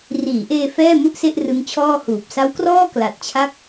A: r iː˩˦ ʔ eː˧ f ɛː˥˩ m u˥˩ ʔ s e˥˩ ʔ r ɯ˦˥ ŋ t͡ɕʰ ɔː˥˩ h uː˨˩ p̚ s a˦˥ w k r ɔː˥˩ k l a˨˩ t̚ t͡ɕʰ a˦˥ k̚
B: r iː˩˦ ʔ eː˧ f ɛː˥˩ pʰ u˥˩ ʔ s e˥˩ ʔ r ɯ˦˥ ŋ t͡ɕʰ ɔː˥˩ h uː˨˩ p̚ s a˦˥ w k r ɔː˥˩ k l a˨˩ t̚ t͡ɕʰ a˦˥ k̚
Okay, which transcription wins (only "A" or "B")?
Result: A